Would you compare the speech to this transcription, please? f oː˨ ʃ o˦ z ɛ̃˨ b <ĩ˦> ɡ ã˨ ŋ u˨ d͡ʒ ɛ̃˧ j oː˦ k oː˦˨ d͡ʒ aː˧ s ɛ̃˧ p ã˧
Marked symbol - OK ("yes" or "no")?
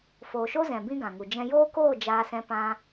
yes